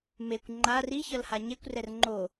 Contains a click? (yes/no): yes